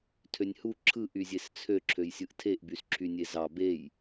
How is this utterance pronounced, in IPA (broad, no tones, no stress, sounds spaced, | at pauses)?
tʰ ø nʲ h u ǁʰ ɯ ʔ y zʲ e s t͡sʰ ø ǁʰ ø j sʲ ɯ ʔ tʰ e ʔ b y s ǁʰ y nʲ e z ɑ b e j